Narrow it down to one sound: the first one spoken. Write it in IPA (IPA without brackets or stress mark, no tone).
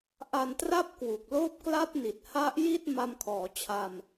ʔ